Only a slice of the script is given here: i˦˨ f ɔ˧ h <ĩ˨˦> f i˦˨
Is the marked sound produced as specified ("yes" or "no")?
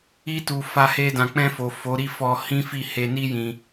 no